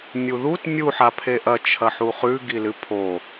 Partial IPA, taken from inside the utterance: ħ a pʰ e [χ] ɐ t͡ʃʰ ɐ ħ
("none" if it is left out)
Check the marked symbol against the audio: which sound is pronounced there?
ʔ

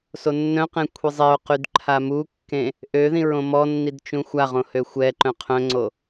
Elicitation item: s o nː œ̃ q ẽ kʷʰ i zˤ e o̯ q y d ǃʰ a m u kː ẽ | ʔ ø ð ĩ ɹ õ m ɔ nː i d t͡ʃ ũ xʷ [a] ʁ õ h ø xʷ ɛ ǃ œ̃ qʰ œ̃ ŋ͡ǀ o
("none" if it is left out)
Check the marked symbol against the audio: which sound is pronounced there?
a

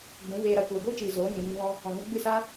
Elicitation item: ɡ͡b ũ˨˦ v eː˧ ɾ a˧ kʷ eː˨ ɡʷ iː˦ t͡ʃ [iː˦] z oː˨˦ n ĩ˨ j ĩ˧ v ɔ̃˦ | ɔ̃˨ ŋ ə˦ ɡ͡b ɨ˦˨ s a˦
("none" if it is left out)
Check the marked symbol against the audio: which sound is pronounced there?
iː˨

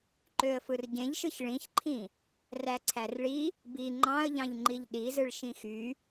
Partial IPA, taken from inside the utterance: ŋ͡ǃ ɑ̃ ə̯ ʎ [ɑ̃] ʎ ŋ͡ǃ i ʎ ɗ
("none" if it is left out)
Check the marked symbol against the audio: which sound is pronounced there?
ɑ̃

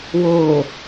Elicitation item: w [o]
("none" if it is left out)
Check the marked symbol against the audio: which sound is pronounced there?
o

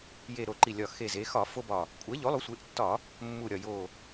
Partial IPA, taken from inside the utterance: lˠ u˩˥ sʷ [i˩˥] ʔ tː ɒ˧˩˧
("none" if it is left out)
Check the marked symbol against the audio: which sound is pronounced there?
e˩˥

